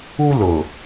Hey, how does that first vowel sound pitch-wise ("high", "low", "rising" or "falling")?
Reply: high